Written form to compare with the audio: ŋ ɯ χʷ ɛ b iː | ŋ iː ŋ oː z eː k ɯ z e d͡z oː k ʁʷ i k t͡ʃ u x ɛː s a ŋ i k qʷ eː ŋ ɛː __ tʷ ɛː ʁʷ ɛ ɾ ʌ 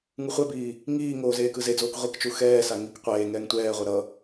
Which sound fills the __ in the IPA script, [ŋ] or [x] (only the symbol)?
ŋ